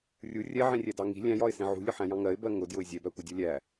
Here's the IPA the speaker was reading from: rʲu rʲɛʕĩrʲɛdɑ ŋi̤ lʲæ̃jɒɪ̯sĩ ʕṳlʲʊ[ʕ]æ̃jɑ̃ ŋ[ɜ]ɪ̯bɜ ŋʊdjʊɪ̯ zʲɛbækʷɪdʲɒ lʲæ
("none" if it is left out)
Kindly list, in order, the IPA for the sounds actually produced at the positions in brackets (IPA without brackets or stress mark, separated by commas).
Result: ħ, ɜ